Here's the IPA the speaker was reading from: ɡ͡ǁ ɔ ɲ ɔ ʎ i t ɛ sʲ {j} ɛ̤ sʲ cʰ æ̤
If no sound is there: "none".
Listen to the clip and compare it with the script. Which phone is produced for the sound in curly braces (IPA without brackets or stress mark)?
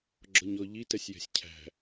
j